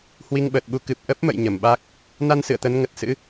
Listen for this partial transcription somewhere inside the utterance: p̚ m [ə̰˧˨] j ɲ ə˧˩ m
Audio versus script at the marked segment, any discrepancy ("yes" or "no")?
no